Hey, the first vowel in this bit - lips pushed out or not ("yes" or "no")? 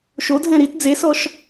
yes